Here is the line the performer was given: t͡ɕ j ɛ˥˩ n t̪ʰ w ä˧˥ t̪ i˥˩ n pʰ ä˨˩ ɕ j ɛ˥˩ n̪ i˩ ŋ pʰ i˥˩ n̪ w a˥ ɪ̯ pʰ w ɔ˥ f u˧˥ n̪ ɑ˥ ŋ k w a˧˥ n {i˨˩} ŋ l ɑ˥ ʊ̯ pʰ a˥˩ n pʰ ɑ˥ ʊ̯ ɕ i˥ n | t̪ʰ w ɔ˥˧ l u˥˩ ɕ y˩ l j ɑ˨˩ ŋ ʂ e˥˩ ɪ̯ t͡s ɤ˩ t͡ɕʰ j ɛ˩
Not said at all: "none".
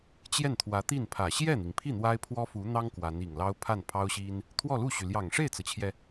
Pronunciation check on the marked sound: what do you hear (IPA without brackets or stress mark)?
i˨˩